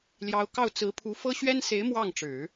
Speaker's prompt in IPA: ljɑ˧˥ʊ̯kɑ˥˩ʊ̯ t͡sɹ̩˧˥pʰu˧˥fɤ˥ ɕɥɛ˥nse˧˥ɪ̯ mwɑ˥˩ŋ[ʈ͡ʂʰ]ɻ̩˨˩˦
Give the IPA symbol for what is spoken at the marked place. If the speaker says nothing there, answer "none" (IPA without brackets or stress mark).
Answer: ʈ͡ʂ